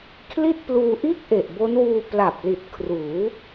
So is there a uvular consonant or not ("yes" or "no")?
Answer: no